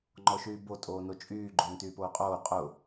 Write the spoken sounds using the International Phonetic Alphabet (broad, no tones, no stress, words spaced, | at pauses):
ŋ͡ǃɔʃyːbo tʼoːnot͡ʃʼyː ɡ͡ǃʊːntyːpoːqʼoː qʼʊ